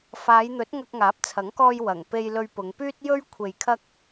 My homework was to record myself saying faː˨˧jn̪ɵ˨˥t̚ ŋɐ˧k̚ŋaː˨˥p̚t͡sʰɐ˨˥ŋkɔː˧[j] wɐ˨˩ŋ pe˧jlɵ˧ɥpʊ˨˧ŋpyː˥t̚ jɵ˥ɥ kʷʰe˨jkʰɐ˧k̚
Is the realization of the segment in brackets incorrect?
no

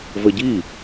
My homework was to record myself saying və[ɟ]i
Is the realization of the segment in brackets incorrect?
no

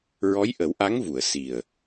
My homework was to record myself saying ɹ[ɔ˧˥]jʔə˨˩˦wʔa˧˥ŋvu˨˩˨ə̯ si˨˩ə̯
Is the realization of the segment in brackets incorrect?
no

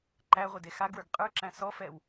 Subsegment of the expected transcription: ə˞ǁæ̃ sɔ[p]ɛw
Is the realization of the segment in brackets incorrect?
yes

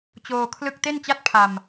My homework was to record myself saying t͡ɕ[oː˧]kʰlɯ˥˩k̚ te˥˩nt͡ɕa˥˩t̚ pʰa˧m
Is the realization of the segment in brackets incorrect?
no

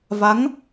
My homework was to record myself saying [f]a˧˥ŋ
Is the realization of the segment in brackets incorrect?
yes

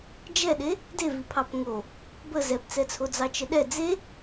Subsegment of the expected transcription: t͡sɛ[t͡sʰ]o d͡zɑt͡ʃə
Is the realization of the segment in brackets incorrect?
no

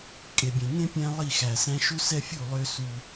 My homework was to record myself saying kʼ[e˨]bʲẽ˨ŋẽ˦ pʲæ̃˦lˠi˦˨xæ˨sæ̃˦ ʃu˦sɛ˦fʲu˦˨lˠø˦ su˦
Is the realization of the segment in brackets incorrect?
no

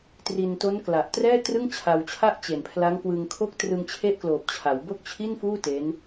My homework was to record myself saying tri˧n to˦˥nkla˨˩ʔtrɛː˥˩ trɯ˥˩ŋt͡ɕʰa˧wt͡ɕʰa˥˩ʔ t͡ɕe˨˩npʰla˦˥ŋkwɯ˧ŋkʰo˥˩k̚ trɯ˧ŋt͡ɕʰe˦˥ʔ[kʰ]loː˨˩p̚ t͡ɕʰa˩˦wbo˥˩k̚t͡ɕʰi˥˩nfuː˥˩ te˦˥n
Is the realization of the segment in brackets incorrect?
yes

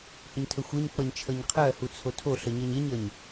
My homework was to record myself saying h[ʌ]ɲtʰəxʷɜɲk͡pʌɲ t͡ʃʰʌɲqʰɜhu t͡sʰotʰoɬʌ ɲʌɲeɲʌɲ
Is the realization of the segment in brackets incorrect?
yes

